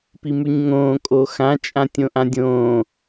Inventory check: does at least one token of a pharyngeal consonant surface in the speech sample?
no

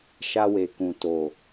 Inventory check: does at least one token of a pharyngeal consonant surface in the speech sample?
no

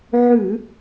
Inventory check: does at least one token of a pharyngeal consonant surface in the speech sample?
yes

